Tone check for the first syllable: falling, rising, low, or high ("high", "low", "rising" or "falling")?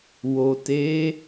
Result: low